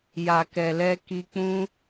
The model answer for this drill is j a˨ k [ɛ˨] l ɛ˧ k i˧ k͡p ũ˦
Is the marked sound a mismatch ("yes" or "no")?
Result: no